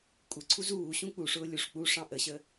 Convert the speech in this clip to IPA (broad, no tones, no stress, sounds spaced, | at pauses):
kʷʼ ɪ ǀʰ u z uː ɕ ũ k͡p u ʂ ʊː lʲ u ʂ k͡p u ʂ ɑ̃ ʔ ə ɕ ə